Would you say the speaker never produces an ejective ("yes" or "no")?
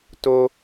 yes